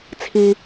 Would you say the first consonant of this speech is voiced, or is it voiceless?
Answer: voiceless